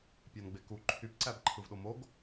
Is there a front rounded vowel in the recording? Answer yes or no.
yes